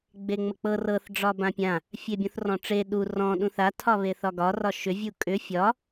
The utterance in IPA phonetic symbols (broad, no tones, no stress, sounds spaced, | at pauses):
ɡ͡b e ŋ͡m ə k͡p ɤ r ɤ θ ɖ͡ʐ ɒ b ã pʲ ã | fʲ e bʲ õ θ r ɔ̃ ʈ͡ʂ e ɗ u r ɔ̃ ɗ ũ θ a tʰ ɒ β e θ ɒ ɡ ɒ r ɒ ʃ ʏ vʲ u kʼ ʏ fʲ ɒ